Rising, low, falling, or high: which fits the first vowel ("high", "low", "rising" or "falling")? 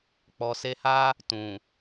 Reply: low